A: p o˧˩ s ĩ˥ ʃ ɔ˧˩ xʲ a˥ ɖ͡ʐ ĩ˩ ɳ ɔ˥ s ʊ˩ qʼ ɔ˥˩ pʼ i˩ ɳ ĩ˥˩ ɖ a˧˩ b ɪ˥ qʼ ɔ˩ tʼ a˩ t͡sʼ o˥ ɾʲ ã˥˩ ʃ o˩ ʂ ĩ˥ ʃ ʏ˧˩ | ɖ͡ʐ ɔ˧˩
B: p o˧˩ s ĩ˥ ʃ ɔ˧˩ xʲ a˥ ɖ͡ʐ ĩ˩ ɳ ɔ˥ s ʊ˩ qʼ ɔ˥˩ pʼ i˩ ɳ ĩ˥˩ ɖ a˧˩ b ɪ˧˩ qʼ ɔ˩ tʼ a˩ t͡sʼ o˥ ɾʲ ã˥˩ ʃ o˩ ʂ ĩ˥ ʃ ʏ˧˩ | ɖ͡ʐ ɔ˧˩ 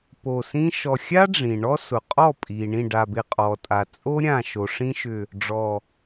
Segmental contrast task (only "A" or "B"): B